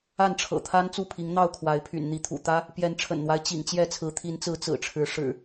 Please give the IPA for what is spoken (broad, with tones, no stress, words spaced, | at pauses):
a˥˨nʈ͡ʂʰɤ̰˨˩t̪ʰa˦n t͡su˥˨pʰi˨˦ŋn̪ɑ˥˨ʊ̯ kʰwa˨˦ɪ̯pʰy̰˨˩n n̪i˨˦t̪ʰṵ˨˩ t̪ä˦ | pjɛ˨˦nʈ͡ʂʰə̰˨˩nn̪wa˦ɪ̯ t͡ɕḭ˨˩ŋt͡ɕjɛ˥˨t͡sʰɹ̩˨˦ t̪ʰi˨˦nt͡sɹ̩˨˦ t͡sɹ̩˨˩ʈ͡ʂʰɻ̩˨˦ʂɻ̩˨˩